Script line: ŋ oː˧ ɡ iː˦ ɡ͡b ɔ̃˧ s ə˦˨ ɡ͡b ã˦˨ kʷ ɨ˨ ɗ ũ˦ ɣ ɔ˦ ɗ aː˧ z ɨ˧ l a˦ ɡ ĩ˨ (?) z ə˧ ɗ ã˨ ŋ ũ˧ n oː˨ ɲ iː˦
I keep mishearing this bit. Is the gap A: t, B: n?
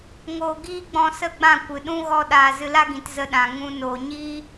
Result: A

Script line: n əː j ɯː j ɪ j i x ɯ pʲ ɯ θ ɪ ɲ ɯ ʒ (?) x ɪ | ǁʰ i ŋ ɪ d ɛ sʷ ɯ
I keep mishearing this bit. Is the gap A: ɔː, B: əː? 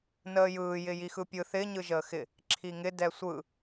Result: B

